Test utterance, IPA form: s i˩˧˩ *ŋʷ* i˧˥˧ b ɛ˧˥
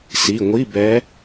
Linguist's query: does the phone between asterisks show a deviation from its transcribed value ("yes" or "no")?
no